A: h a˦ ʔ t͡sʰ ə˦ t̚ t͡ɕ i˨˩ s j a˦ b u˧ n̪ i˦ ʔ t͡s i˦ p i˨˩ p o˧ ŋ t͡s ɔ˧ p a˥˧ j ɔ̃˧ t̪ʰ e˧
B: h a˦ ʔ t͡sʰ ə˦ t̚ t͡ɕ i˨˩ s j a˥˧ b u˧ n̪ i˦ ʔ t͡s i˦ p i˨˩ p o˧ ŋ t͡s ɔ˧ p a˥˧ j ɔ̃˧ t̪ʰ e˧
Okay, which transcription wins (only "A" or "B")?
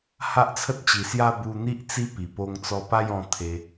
B